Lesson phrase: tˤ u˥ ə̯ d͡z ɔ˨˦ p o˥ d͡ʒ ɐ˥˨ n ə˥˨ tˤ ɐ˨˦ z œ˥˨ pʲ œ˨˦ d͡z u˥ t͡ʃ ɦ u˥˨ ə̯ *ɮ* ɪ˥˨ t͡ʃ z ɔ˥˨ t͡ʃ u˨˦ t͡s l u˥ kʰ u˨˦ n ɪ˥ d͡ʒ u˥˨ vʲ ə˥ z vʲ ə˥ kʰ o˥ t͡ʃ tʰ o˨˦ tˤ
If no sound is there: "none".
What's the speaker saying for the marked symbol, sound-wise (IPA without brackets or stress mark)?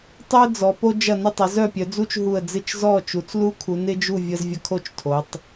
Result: d͡z